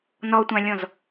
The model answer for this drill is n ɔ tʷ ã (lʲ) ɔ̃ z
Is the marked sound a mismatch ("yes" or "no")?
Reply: no